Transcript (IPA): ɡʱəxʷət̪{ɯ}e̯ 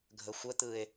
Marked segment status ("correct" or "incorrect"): correct